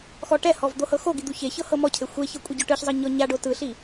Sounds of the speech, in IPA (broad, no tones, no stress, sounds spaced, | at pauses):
x ɔ ʈ ɛ h ɔ v d̪ o h ɤ x o ɡ i d̪ u ç e ç ɤ h ɤ m ɔ cʰ e xʷ e ç ɤ kʷʼ e ɟ ɔ ʈ ɯ ç zˤ ɤ ɲ ɔ ɲ a ɖ o t ɯ ɬ i